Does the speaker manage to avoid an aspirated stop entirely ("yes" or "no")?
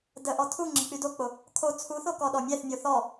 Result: no